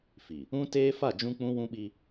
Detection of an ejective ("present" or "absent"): absent